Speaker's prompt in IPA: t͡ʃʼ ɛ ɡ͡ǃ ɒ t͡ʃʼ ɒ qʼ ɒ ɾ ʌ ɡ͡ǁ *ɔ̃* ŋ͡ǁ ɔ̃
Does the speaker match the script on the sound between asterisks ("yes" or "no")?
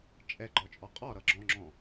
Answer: yes